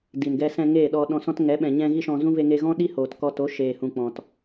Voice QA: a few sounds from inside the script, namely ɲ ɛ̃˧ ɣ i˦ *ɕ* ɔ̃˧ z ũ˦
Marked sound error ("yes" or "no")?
yes